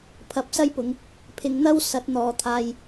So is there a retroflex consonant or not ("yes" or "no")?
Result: no